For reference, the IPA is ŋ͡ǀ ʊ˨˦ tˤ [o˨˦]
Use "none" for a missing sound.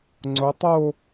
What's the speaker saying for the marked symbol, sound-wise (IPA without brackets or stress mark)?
o˥˧